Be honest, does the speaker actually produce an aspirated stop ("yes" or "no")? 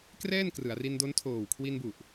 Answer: yes